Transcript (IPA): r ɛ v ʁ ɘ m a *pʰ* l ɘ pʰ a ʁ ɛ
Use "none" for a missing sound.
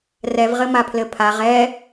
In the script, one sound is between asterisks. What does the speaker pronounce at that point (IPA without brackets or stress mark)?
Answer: pʰ